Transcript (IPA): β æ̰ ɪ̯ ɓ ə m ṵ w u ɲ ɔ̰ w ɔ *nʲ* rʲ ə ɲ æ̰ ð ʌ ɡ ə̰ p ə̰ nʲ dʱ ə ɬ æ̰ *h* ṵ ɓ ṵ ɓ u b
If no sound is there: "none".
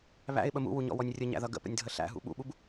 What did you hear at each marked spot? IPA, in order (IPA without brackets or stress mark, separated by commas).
nʲ, ɦ